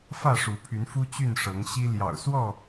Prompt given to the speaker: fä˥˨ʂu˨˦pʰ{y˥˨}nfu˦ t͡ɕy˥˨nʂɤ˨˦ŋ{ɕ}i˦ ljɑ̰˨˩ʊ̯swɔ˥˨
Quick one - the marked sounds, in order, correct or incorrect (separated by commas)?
incorrect, correct